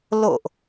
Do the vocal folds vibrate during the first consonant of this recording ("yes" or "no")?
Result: yes